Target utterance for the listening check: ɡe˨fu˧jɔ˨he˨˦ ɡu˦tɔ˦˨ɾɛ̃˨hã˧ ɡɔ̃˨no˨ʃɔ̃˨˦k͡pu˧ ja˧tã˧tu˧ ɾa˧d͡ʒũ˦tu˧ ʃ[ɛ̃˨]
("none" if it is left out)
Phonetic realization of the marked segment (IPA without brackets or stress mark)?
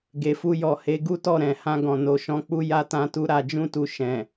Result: ɛ̃˨